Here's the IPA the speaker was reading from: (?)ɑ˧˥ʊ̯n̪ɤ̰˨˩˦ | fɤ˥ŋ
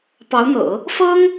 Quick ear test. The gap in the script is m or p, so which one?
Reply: p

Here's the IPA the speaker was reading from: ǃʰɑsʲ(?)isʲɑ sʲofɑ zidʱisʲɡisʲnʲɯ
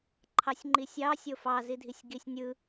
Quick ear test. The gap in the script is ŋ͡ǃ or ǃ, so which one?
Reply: ŋ͡ǃ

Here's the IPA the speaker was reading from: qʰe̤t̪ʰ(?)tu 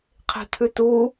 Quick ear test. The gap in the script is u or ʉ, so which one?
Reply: ʉ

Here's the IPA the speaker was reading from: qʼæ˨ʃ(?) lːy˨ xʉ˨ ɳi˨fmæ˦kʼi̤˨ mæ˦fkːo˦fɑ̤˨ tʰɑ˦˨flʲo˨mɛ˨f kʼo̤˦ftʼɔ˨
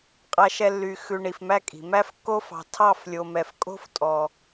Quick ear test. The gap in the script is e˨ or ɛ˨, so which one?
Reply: ɛ˨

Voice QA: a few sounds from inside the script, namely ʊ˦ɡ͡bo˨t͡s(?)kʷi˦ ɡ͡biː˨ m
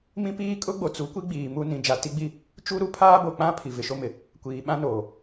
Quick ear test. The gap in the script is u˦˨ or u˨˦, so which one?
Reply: u˨˦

